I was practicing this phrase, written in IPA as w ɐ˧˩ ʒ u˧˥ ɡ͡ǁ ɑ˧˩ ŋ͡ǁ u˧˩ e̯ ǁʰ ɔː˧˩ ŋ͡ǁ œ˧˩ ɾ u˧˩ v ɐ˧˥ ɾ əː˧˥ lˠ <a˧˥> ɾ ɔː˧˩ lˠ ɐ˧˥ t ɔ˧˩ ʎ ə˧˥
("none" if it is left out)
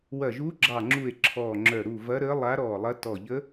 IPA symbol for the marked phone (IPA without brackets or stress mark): a˧˥